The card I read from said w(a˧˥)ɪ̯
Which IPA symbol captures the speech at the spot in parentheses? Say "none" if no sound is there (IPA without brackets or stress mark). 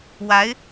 a˧˥